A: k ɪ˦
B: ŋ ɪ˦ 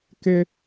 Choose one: A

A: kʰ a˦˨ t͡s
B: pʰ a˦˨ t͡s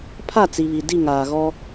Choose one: B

